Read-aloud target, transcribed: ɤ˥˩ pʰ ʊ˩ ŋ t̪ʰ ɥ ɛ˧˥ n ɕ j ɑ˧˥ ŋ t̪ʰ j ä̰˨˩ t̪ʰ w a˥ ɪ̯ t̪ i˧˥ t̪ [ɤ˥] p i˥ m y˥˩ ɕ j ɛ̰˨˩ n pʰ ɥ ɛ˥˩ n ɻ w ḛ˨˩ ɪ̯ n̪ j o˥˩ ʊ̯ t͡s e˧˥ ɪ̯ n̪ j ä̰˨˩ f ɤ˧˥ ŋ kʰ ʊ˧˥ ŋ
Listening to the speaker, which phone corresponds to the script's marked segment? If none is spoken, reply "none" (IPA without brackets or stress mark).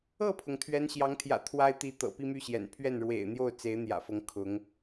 ɤ̰˨˩